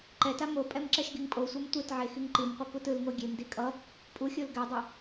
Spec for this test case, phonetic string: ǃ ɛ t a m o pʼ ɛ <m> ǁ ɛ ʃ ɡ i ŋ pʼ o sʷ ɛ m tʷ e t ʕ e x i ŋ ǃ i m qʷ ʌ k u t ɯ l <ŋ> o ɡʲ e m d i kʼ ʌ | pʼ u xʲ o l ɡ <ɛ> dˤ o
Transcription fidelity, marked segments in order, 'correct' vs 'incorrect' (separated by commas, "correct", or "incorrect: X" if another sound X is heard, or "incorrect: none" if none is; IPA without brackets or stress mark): correct, correct, correct